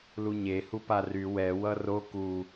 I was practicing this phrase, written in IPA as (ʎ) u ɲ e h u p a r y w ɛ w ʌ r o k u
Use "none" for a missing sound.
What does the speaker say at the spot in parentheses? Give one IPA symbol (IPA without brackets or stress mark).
l